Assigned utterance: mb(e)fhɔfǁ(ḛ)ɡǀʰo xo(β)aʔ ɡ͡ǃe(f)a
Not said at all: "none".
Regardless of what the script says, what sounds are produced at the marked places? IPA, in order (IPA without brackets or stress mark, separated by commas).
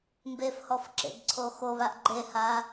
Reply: e, ḛ, β, h